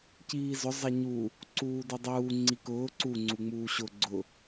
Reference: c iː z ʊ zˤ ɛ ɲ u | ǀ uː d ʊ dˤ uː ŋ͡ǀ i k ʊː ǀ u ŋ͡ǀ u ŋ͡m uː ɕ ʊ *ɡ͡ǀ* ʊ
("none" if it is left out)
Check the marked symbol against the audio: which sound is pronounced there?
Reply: ɡ͡ǀ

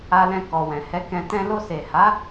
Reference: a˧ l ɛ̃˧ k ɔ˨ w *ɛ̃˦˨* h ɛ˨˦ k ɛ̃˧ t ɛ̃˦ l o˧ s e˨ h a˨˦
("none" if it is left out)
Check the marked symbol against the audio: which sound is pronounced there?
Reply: ɛ̃˨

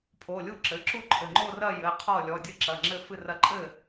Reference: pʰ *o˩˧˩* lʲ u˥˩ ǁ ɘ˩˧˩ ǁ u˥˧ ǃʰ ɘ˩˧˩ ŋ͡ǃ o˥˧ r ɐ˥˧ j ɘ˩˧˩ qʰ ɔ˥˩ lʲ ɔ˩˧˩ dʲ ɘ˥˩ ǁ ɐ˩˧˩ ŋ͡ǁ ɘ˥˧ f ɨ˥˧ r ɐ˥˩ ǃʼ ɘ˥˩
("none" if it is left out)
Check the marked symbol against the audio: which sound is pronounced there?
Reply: o˩˧˩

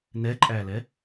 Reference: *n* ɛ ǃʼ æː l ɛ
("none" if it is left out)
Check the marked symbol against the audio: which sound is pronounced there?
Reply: n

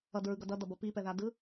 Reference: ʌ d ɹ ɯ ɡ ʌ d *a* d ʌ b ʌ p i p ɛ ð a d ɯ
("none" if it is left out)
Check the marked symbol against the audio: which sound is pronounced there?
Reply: ʌ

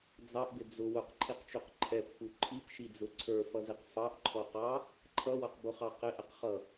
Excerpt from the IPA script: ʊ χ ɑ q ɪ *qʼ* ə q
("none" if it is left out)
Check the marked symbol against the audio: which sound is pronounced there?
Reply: ʔ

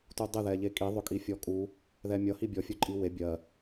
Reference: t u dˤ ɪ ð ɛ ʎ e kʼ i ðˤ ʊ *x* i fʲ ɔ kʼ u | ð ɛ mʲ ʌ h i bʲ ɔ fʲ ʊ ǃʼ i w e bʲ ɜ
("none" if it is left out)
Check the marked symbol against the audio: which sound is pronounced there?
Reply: kʼ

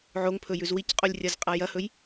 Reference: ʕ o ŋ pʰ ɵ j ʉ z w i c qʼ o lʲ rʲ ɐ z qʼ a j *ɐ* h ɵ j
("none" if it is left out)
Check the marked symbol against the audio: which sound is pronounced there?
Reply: ɐ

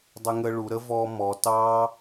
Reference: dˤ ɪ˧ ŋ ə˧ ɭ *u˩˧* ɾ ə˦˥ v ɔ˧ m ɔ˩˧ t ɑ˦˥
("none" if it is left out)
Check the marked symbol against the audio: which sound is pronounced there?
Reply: u˩˧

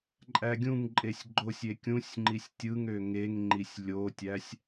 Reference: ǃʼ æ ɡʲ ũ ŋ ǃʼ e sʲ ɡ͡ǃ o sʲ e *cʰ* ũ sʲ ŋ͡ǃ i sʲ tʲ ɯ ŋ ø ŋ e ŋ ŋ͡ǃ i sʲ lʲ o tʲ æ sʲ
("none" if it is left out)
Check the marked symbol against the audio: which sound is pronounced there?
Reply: kʲ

